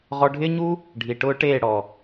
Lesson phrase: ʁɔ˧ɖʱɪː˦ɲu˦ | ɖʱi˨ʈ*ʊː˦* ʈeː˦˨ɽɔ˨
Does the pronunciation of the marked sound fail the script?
no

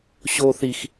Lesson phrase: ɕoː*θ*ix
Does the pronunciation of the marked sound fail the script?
no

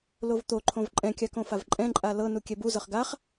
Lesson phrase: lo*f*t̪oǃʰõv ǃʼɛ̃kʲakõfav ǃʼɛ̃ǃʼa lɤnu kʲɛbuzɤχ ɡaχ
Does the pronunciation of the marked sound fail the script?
yes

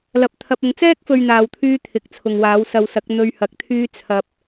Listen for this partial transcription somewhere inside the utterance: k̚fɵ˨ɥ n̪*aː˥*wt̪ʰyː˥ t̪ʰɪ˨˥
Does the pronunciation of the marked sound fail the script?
yes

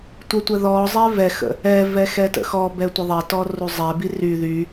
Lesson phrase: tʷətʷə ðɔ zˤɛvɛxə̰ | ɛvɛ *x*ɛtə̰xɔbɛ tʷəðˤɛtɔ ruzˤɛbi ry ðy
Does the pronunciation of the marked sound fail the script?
no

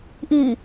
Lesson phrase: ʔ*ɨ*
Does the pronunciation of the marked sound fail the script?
no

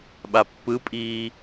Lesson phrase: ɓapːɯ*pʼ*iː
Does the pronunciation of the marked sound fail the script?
no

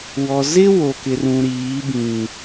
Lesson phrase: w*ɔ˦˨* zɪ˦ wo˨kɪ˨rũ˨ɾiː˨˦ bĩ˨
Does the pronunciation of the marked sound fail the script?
yes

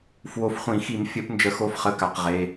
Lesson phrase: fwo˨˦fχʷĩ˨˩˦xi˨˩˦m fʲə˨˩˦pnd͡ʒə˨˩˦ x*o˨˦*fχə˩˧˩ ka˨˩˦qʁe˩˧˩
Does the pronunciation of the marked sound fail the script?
no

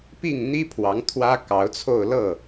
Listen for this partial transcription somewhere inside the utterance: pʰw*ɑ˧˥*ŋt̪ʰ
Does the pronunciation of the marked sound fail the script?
no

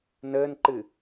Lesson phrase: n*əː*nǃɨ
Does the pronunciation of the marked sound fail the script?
no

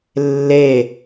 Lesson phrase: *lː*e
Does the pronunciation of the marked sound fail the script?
no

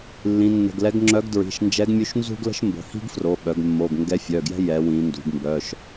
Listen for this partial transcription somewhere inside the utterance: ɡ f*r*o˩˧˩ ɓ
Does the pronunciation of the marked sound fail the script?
no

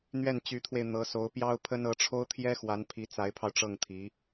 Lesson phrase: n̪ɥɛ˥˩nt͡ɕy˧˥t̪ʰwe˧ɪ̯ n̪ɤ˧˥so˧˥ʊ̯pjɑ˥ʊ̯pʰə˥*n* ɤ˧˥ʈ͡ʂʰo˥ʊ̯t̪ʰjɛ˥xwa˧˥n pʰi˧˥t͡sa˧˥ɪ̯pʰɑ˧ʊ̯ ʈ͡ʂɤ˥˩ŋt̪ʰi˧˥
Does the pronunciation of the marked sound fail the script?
no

